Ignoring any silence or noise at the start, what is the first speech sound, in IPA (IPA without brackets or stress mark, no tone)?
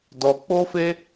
d